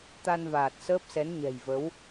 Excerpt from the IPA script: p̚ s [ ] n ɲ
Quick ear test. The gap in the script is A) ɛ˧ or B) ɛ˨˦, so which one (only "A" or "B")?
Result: B